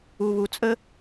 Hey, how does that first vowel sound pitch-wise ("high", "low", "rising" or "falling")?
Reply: low